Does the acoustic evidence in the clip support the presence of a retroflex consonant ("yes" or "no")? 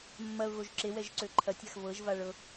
yes